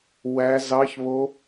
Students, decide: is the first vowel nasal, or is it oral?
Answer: oral